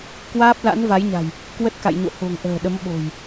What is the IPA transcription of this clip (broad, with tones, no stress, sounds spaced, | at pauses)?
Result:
k w aː˦˥ p̚ l a̰˧˥ n v a˨˦ j ɲ a̤˨˩ j | k w ə˦˥ t̚ k a̰˧˨ j ɲ o̰˧˨ h o̤˨˩ ŋ ʔ ə̤ː˨˩ ɗ ə˨˦ m ɓ o̤˨˩ j